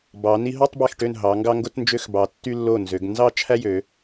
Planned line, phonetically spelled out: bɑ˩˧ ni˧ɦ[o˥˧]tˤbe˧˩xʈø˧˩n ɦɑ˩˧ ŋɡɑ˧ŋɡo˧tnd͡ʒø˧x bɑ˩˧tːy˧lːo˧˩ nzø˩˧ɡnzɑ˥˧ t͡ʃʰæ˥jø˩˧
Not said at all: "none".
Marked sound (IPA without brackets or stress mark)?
o˥˧